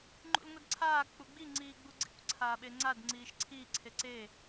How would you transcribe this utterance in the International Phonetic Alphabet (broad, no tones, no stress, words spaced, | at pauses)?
ŋ͡ǃṵlŋʷidǀʰaː k͡puɡ͡bi ŋ͡ǀiːɡ͡buɡ͡ǀḭkʷ ǀʰaːɓeŋ͡ǀad ŋ͡ǀiːʃǀʰiː ǀʰeǀe